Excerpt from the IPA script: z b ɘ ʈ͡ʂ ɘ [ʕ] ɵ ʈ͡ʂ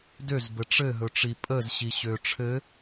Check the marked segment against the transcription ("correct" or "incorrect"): incorrect